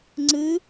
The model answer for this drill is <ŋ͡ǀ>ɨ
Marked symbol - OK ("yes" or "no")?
yes